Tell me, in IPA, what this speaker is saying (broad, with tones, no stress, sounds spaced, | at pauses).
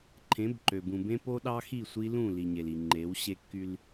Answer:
ǃʰ ẽ˨˦ b ǃ ø˨ b ũ˨ b ẽ˦ p o˦ ɗ ɑ˦ x i˦˨ sʷ i˦ l ũ˦˨ l i˨ ɲ e˨ l i˨ ŋ͡ǃ e˨˦ w ɕ e˦ kː y˦ l